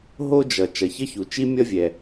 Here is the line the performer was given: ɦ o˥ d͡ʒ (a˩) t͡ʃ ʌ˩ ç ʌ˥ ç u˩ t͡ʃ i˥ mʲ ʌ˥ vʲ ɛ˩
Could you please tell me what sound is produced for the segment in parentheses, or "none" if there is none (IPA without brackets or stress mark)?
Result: ʌ˩